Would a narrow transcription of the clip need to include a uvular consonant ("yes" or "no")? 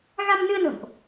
no